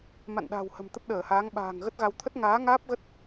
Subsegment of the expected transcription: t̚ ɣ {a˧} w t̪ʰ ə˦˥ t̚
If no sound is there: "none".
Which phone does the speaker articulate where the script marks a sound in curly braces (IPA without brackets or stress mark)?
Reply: a˧